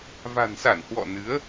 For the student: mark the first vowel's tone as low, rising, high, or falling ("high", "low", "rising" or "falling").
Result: low